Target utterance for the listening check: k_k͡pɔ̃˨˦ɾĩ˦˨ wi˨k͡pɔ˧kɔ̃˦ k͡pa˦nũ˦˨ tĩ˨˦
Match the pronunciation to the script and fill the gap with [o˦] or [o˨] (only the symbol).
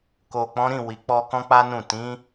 o˨